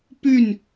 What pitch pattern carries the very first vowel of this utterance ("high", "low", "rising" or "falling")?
falling